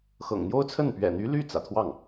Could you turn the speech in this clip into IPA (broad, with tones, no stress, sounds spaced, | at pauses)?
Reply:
x ɤ̰˨˩ ŋ n̪ j o˥ ʊ̯ t͡sʰ ə˥˩ n p ɥ ɛ̰˨˩ n̪ y˧˥ l y˥˩ t͡s ä̰˨˩ t̪ʰ w ɑ˥˩ ŋ